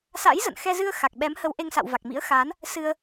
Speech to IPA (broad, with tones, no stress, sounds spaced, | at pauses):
s a̰˧˥ j z ə̰˧˨ n x ɛ˧ z ɨ˧ ə̯ x a˨˩ k̚ ɓ ɛ˨˦ m h ə˨˦ w ʔ e˧ ŋ s a̰˧˨ w v a˨˩ k̚ m ḭ˧˥ ə̯ x aː˨˦ n | s ɨ˧ ə̯